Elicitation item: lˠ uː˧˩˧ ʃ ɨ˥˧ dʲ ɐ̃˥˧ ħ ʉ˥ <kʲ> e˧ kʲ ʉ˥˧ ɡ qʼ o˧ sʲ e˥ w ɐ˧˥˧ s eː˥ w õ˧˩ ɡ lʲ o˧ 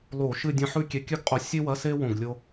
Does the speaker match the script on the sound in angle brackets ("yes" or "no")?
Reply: yes